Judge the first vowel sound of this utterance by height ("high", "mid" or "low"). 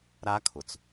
low